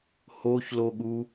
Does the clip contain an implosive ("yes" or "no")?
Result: yes